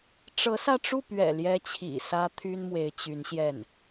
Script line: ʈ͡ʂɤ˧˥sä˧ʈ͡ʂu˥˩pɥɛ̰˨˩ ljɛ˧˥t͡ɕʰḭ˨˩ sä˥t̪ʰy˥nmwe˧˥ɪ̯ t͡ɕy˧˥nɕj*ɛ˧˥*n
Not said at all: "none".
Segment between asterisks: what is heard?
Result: ɛ˥˩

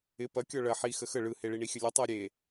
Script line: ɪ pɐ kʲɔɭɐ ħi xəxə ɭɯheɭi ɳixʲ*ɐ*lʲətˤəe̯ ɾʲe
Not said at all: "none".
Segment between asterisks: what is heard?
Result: ə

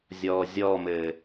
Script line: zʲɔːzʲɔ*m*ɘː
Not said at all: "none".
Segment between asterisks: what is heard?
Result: m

